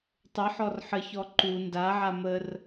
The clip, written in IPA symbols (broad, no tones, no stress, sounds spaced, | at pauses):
tˤ ə ħ ɔ r ħ ə ç ɔ ǃ u n d a ʕ a m ə r